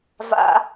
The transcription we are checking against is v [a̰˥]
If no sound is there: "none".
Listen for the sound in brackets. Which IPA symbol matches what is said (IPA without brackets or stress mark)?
a̰˥